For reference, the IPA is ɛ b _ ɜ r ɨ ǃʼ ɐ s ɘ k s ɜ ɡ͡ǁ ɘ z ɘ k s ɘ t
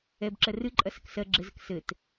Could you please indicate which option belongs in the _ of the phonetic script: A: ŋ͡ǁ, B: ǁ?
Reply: B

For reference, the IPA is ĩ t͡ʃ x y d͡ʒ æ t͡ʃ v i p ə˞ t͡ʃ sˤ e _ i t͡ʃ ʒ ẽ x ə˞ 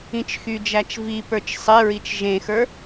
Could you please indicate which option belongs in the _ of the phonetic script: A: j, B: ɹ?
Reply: B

